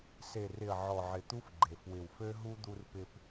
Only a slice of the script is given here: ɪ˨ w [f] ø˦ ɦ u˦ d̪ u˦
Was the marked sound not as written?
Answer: no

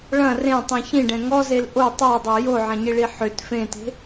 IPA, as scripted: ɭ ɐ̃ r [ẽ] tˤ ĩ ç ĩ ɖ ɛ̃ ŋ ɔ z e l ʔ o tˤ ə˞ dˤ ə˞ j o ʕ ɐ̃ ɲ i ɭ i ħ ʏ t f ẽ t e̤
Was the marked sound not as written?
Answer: no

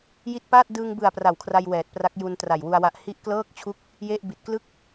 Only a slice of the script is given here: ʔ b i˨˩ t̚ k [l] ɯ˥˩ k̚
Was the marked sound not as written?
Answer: no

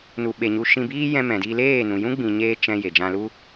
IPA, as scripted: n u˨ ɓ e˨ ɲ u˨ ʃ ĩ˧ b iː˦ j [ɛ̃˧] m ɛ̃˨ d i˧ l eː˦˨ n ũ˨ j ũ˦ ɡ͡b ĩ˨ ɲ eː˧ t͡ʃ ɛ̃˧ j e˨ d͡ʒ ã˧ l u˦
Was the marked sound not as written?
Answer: no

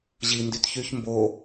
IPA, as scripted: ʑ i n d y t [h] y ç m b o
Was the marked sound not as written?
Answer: yes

